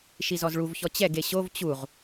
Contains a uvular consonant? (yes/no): yes